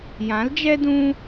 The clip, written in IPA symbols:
j ã˨˦ l d͡ʒ ɛ˦ d ũ˦

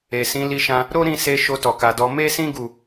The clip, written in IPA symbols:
e˨ s ĩ˨˦ l i˧ ʃ ã˧ | ɾ o˦ ɾ ĩ˦˨ s e˧ ʃ o˧ t ɔ˨ k a˨ d ɔ˧ m e˦ s ĩ˦ ɡ u˦˨

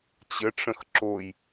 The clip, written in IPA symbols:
t͡ɕ ə ʈ͡ʂ ə̃ x ǁ o j

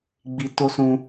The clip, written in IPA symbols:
ɡ͡b i˧ t o˦ s ũ˧

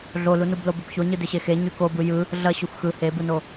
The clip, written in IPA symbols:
ɮ o l u n u b l o b ɪ b ç o ɲ ɯ d ɪ ɕ e x e ɲ y k o b ɯ j ɯ | ɮ ɐ ɕ u f x ɯ h e b ɯ n o

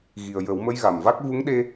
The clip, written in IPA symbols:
ɣ i˨˩ ə̯ j ə˨˩˦ w m ə˧˥ j ɣ a˨˩ m v a˦˥ k̚ v u˧˥ ŋ ɗ e˧

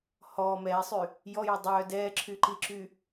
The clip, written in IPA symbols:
h ɔː m ɛː sˤ y | j ɔ j œ dˤ œː d ɛː ǁʰ y ǃ i ǁ y

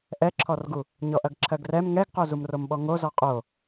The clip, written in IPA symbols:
ʔ ɛ ǁʰ ɔ r ɡ u | ɲ ɔ ʔ ɐ ɡ ǁʰ ɜ ɡ r ɛ m ŋ ɛ ɡ q o z u m r o m ɓ ɔ ŋ o z ɔ qʼ o

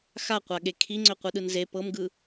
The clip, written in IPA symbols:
x a qʷ a ɠ e kʰ i ŋ͡ǀ ø qʷ ɯ ɗ ɯ n z e p ɤ m ɡ ɯ

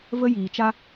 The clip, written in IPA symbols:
v ə˦ j iː˨ t͡ʃ a˦

